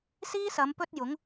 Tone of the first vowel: high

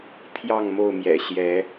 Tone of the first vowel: falling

